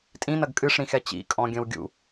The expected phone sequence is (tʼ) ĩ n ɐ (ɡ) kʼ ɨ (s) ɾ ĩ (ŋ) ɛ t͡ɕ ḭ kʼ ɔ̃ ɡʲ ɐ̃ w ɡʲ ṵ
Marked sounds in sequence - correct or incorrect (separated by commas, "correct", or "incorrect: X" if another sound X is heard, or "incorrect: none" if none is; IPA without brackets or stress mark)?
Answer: correct, correct, incorrect: ʂ, incorrect: x